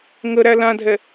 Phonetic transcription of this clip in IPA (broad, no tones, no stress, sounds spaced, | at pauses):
ŋ ə ɾ æ l ã dʱ ɛ